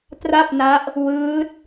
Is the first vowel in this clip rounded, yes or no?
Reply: no